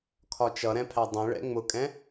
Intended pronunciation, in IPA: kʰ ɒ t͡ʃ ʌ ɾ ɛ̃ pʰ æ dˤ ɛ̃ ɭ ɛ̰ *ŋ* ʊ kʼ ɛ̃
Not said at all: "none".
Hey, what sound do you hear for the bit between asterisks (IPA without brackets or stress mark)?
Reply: ŋ͡m